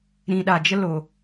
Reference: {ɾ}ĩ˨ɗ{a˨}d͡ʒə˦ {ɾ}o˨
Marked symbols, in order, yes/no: yes, yes, no

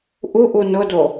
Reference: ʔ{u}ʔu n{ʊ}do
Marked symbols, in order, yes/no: yes, yes

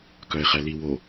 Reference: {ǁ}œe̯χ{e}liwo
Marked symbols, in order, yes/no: no, no

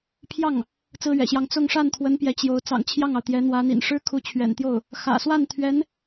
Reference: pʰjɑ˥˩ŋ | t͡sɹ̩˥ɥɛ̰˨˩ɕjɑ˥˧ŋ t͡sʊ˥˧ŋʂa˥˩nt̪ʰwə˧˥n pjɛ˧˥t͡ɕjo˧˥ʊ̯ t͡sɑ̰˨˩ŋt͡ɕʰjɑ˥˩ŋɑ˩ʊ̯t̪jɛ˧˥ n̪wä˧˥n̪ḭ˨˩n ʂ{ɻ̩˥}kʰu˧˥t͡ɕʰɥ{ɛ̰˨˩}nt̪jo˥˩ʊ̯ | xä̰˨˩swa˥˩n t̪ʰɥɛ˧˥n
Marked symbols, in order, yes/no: yes, yes

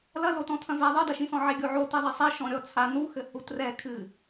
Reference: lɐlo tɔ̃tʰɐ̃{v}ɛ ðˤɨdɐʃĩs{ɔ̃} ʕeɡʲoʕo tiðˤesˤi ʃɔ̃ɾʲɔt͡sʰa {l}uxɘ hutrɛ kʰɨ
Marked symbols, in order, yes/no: yes, yes, no

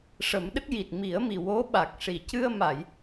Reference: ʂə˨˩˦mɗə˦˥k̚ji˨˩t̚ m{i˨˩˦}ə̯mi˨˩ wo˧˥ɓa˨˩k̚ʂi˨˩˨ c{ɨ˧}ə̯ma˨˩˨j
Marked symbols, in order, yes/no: yes, yes

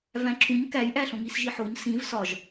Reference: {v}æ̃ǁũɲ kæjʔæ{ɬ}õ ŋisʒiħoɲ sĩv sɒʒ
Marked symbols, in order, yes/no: yes, yes

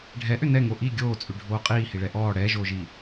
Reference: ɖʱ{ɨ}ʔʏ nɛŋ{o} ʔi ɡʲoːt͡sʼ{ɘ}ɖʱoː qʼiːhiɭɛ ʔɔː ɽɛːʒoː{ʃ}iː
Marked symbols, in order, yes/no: no, yes, no, no

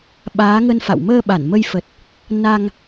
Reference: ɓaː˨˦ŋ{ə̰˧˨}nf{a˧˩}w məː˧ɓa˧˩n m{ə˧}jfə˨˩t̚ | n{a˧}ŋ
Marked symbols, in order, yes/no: no, no, yes, yes

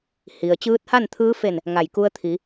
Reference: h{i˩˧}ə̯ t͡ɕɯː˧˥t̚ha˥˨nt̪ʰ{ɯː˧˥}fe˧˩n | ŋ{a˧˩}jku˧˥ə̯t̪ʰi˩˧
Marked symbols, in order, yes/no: no, yes, yes

